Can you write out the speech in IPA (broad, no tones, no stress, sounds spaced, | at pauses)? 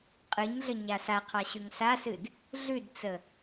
qʼ ɨ ɲ ɮ ə ɲ a s a qʰ ɑ ɕ ʉ ŋ s a s ɨ d | ɮ ʉ d t͡s ə